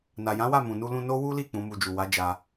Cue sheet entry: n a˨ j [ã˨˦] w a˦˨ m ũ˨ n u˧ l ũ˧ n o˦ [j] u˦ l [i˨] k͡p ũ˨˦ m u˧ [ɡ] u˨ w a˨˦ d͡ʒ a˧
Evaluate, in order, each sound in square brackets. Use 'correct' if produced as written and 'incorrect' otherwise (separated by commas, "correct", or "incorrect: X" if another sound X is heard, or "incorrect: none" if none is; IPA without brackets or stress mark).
correct, incorrect: w, incorrect: i˦˨, incorrect: d͡ʒ